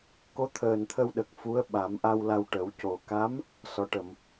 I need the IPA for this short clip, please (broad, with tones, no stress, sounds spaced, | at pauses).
k o˧˥ t̪ʰ əː˨˩ n t̪ʰ ə˧ w ɗ ə˨˩ k̚ f u˧˥ ə̯ ɓ a˨˩˦ m ʔ a˧ w l a˧ w ʈ ə˨˩˦ w c o˨˩ k a˧˥ m | s ɔ˨˩˦ ʈ ə˨˩˨ m